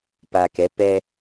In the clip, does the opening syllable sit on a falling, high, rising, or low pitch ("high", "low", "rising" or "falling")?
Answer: low